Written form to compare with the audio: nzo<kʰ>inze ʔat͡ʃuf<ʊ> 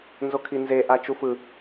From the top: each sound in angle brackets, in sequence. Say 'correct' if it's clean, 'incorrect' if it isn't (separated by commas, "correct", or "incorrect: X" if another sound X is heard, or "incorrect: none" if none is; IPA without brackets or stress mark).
correct, incorrect: ɯ